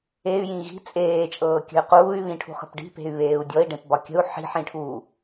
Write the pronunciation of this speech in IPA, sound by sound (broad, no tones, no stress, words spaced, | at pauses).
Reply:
ey̯jĩ ɣi̤ t͡sʼeːt͡ʃʼɤːkʲə̤y̯ quːy̯βĩʈʰṳχə̤p ɖi̤pe̤y̯βeːu̯ dʲɔi̯ɖẽpbɒ kʲə̤u̯ ħi̤ħĩʈʰuː